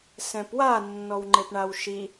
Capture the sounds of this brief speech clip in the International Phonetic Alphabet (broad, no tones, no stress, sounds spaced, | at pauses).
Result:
s ɛ̃ p w a nː ɔ w ŋ͡ǃ e p ɳ a w ʃ i